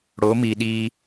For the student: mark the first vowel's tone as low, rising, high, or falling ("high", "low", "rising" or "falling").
rising